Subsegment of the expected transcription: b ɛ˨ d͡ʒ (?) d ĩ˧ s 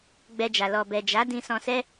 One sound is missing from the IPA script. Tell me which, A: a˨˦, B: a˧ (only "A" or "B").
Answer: A